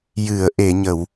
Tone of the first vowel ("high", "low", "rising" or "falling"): low